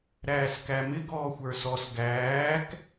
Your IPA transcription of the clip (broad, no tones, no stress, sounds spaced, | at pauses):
ɾ æː s k æ m ɪ ɡ ɔː xʷ ə˞ s ɔ s ɡ æː k